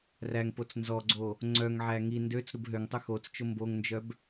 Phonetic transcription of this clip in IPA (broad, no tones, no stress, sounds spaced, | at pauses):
r æ ŋ p o t͡s n z ɔ ɡ͡ǀ o | ŋ͡ǀ œ ŋ ʕ æ ŋ i n d ø t͡s ɾ u b ɦ ø ŋ tˤ ɵ x o t͡s t͡ʃ o m b o ŋ n d͡ʒ œ b